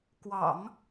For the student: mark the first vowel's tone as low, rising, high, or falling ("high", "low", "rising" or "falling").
low